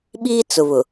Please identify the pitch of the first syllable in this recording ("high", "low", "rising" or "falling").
high